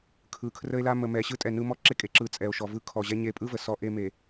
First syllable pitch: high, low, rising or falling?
low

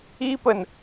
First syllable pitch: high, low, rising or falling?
high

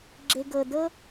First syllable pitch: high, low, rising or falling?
low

